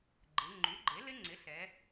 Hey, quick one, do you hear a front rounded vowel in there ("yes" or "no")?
yes